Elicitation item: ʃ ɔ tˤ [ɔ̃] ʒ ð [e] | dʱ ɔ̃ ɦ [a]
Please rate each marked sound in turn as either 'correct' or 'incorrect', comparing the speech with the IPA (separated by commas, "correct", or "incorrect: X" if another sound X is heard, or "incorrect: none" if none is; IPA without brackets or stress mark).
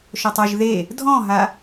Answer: incorrect: ɔ, correct, correct